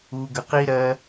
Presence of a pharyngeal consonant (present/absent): absent